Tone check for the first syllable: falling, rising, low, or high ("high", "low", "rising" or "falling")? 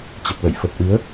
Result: low